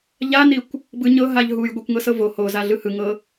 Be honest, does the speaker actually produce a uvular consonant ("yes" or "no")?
no